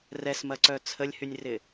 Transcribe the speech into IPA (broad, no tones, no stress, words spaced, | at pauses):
rɛsmɐǀœ t͡sʰəlʲhynʲrɪ